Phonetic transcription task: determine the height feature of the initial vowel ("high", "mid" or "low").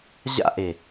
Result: low